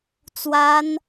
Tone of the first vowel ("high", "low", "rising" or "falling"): high